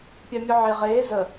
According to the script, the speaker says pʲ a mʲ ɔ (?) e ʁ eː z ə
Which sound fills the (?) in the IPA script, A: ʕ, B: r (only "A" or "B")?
A